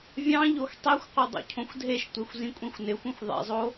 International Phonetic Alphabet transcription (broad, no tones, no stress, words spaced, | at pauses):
vʲɑ̃ ʎoxtˤixʷqʷʌ dˤo̰cʰõxʷdʱeʃtʷexʷ zĩkʷʼĩxʷnɪxʷĩxʷ ðˤḛzˤo